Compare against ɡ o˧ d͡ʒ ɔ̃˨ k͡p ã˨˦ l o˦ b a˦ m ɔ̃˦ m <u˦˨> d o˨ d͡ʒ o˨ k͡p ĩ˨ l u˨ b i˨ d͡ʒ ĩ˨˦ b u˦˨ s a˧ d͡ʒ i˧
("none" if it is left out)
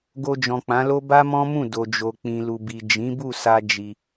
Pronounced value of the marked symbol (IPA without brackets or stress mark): ũ˦˨